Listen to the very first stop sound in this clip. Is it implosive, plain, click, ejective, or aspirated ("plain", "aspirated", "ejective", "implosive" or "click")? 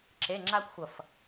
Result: click